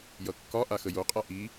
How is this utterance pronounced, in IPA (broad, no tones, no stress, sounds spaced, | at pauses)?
j ʌ kː ɒ ʔ a x ə j o qʼ a ʔ i